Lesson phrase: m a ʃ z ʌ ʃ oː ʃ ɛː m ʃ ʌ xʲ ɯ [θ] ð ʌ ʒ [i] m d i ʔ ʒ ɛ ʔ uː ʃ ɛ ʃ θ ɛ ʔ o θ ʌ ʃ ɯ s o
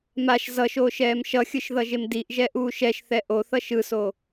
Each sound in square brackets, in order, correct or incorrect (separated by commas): incorrect, incorrect